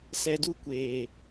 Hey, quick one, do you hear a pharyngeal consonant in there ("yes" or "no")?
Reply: no